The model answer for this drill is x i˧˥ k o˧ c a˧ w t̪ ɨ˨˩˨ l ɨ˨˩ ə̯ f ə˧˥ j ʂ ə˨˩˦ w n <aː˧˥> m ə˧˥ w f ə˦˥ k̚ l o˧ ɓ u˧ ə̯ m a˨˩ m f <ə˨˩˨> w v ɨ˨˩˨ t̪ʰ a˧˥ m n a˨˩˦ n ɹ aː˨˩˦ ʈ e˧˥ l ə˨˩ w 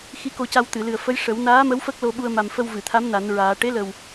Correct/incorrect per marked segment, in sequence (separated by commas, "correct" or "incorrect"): correct, incorrect